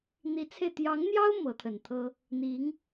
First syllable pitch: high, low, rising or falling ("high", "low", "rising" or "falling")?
rising